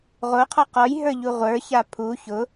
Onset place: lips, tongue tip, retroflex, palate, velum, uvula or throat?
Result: uvula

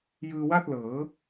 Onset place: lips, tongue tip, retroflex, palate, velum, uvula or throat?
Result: palate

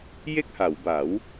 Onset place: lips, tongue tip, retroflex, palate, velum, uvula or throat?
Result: palate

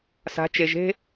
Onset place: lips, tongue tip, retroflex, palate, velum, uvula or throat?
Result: tongue tip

